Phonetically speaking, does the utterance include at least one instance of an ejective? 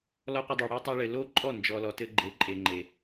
yes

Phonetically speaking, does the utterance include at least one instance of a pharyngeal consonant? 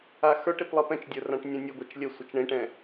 no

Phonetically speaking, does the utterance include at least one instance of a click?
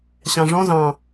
no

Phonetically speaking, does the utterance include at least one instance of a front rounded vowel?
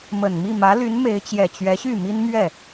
yes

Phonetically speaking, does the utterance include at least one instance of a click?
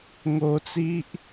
no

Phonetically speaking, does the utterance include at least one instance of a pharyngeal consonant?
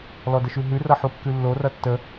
yes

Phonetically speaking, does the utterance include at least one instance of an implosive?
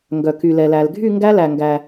no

